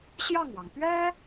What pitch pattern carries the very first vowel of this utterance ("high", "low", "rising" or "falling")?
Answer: falling